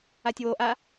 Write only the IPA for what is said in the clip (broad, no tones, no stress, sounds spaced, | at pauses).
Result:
a tʲ w o ʔ a